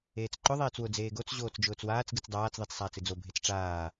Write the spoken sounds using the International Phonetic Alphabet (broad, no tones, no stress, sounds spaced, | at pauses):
eː t͡s ǃ ʊ ðˤ eː t͡s w ʊ d͡z eː ɡ o t͡s ʑ oː t͡s d͡ʒ ʊː t͡s w aː t͡s ɡ ɨ t͡s dˤ aː t͡s ðˤ i t͡s sˤ aː t͡s ɨ d͡z o bʱ e t͡s ʈ͡ʂ aː